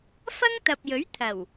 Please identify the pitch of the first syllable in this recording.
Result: high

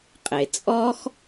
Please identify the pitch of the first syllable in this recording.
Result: low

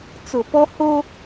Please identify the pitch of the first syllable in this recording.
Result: low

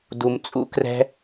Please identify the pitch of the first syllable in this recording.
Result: low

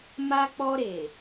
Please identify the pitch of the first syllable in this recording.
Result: high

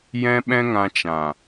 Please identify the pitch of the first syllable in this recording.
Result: high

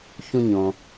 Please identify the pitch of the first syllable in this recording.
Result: low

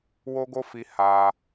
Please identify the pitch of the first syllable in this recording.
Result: high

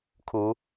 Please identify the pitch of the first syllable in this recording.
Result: rising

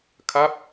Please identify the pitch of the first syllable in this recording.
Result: falling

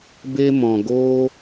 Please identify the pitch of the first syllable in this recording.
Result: high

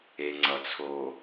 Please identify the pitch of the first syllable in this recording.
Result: low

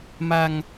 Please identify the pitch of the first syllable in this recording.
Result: low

